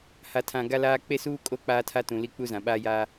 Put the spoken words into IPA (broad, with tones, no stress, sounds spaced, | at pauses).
h a˨ tʰ ã˨ ɡ a˦ l aː˦ k͡p e˦ s uː˦ kʼ o˦ k͡p aː˦ tʰ a˦ t ũ˨ l i˦ k͡p u˦ z ã˨ ɓ a˦ j a˦